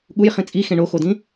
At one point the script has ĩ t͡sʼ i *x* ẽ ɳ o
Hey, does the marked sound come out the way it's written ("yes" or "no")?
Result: yes